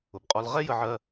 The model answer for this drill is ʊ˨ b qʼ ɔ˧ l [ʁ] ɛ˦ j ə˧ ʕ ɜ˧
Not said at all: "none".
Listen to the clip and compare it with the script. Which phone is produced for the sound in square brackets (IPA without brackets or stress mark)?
ʁ